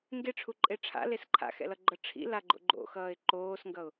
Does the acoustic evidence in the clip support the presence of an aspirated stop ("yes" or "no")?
yes